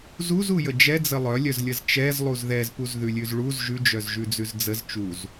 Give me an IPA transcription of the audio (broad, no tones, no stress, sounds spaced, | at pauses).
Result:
z u z u j ə d͡ʒ ɛ d͡z ə lˠ œ lʲ œ z lʲ ə z t͡ʃ ɛ z lˠ u z ð ɛ z p u z ð ʉ lʲ ʉ z ɭ u z ʒ ʉ d͡ʒ œ z ʒ ʉ d͡z ʉ z d͡z ə z t͡ʃ u z